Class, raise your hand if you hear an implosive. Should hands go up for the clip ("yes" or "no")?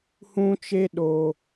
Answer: yes